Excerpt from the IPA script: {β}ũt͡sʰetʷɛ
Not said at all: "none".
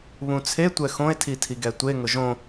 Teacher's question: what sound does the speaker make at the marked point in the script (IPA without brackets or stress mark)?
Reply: β